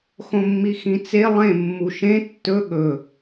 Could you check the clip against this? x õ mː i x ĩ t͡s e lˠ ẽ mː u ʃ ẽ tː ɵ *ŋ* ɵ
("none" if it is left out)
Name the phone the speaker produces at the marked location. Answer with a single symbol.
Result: ɠ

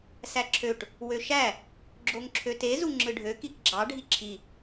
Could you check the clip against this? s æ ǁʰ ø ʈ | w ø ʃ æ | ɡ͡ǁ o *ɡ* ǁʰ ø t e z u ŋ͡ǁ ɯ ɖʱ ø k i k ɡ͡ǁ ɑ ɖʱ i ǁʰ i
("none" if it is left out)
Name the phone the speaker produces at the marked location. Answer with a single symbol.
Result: ŋ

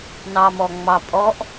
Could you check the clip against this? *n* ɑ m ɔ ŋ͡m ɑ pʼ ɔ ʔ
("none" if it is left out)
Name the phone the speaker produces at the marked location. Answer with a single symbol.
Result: n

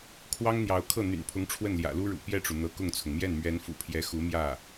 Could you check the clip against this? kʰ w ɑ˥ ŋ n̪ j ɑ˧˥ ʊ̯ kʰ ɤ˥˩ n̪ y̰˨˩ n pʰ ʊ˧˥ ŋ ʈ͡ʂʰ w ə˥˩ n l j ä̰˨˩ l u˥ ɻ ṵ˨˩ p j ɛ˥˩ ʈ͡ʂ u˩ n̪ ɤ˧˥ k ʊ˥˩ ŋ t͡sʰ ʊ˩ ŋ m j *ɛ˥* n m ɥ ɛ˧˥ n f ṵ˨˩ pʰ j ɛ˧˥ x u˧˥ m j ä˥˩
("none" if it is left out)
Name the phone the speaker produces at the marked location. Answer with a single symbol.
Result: ɛ˥˩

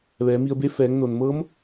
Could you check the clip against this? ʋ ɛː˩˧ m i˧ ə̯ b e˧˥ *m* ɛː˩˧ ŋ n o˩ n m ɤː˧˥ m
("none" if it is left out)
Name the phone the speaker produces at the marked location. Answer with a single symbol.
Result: f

